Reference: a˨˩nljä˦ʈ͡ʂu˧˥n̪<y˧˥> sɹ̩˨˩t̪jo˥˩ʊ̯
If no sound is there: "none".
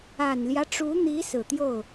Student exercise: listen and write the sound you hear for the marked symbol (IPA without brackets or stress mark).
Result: i˧˥